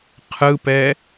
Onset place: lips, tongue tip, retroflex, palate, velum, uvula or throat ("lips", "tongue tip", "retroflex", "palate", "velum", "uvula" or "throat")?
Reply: uvula